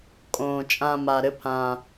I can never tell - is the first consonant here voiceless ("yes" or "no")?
yes